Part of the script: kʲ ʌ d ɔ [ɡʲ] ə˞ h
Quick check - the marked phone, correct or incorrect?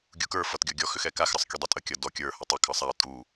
incorrect